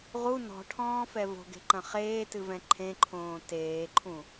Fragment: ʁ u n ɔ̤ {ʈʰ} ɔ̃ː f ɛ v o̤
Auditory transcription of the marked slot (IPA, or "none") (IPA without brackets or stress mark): ʈʰ